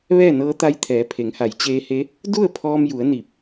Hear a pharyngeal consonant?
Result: no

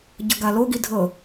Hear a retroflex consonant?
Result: no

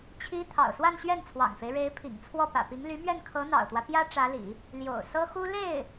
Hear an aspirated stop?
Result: yes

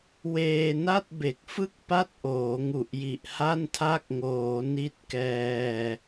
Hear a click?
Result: no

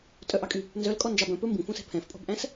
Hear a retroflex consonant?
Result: no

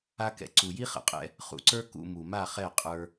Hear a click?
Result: yes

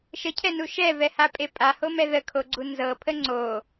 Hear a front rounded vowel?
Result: no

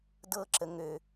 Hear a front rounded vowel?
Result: yes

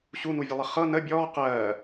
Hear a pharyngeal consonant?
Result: no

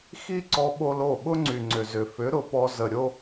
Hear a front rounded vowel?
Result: yes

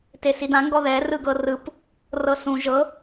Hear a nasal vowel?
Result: yes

